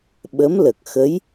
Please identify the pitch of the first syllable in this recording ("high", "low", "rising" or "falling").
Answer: rising